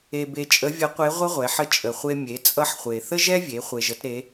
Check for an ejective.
present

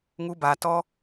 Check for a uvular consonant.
absent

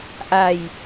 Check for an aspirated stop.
absent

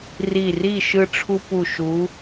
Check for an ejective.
absent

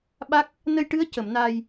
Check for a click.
absent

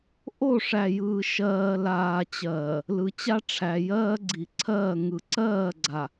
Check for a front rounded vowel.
absent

